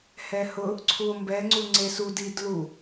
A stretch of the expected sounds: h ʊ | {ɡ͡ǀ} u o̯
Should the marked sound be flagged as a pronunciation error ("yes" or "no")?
yes